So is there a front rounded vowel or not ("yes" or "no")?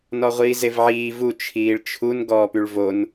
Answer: yes